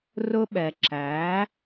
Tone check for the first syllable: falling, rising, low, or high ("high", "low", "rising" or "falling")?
high